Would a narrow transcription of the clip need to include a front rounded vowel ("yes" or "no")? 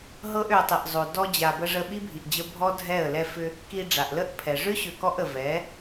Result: yes